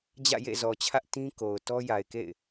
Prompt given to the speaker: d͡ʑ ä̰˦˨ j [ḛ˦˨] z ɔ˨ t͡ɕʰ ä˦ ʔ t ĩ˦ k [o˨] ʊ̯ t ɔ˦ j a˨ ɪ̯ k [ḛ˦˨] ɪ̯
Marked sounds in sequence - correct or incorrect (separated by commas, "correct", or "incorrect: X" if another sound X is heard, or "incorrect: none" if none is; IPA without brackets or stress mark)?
correct, correct, correct